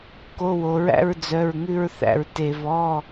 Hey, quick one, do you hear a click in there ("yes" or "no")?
no